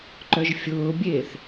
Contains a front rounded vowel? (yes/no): yes